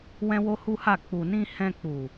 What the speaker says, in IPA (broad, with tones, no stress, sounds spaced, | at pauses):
w ɛ̃˦ w o˦ h u˦ h a˦˨ k͡p u˨ n ĩ˧ h ɛ̃˧ k͡p u˨